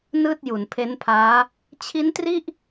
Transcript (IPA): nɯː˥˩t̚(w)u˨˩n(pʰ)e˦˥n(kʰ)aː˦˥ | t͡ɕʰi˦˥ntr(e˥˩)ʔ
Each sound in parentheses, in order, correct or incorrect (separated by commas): incorrect, correct, incorrect, incorrect